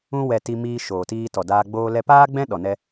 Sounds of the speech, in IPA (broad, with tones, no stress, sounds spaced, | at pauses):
ũ˧ w ɛ˨ t i˧ m iː˧ ʃ oː˨ t iː˧ t ɔ˨ d aː˧ ɡ͡b oː˧ l ɛ˧ p aː˦ ɡ͡b ɛ̃˦ ɗ ɔ˨ n ɛ˧